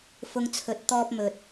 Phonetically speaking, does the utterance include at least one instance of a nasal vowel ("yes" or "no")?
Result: no